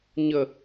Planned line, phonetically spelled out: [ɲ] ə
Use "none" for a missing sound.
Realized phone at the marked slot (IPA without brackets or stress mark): ɲ